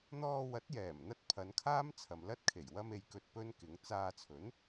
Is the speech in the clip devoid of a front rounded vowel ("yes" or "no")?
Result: yes